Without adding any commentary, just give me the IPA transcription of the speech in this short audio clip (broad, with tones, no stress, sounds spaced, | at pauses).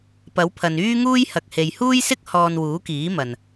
p ɐ˨˥ w pʰ ɐ˨ n yː˥ ŋ uː˥ j h ɐ˨ k̚ h e˨ j h uː˥ j s ɪ˥ k̚ h ɔː˧ n w uː˨˥ k iː˨˥ m ɐ˨ n